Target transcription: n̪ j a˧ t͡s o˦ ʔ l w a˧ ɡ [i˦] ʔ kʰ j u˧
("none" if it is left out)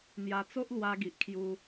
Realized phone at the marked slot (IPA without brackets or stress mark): i˨